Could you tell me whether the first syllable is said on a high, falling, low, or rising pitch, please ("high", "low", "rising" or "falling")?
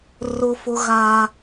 high